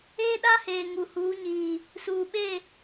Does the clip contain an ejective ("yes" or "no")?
no